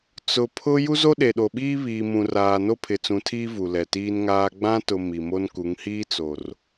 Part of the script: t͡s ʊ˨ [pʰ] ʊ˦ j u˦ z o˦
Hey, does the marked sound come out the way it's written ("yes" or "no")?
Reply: yes